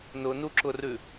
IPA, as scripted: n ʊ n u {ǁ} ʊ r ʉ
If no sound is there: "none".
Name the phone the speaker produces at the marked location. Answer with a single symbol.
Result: ǁ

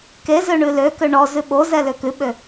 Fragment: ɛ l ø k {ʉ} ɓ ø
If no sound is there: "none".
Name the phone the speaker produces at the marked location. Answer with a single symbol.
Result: ʉ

